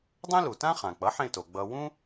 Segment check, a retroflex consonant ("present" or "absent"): absent